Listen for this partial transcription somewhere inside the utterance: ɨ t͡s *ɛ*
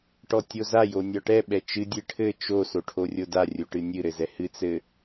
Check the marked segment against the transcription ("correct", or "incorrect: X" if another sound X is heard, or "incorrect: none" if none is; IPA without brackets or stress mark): incorrect: ɘ